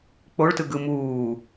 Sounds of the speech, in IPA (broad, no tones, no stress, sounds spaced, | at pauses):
k͡p o ɭ t ɯ ɡ ɯ m uː